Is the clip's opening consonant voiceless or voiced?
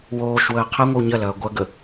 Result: voiced